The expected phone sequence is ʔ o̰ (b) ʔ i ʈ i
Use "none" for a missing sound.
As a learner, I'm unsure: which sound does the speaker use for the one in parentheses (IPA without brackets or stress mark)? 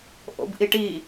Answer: b